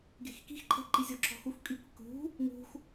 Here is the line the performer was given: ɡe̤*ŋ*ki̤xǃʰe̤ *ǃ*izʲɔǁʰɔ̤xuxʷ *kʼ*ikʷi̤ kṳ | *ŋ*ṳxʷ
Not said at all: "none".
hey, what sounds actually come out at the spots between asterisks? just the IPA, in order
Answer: x, ǃ, kʼ, ŋ

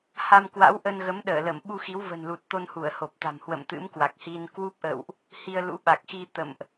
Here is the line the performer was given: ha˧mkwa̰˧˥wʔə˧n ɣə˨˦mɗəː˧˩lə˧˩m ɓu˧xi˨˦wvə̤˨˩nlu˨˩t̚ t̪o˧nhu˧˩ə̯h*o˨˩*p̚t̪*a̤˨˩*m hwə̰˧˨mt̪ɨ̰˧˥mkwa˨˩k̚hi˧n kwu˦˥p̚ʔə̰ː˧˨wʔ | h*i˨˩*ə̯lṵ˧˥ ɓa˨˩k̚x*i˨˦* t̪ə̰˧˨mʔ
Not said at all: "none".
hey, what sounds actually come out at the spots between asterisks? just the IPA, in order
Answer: o˨˩, a̤˨˩, i˧, i˧

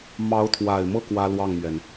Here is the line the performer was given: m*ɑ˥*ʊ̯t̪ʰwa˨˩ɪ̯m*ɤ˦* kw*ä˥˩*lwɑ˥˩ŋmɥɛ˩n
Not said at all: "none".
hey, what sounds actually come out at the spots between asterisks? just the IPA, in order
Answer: ɑ˧˥, ɤ˥˩, ä˥

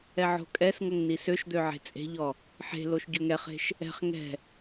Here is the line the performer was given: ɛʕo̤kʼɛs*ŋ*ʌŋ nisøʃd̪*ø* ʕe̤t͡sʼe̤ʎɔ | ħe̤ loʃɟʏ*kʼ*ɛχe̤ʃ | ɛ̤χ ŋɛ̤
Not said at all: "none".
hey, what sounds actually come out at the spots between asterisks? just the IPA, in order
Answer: ŋ, ø, ŋ

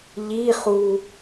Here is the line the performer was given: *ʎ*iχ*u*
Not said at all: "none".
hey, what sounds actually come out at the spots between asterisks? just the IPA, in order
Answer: ʎ, u

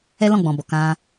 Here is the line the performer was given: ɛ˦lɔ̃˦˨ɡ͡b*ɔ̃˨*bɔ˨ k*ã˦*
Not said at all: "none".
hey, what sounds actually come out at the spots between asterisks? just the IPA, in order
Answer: ɔ̃˨, ã˧

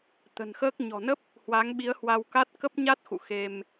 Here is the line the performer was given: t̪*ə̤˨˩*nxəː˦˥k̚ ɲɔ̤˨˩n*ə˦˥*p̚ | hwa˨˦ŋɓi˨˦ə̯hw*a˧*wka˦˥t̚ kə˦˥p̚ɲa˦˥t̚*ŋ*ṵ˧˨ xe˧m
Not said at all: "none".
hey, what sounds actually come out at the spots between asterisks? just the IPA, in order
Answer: ə̤˨˩, ə˦˥, a˧, x

